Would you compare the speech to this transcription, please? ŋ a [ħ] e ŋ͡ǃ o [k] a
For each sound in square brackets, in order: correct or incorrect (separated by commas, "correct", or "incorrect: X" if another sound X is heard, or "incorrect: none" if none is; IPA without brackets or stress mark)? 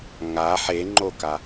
correct, correct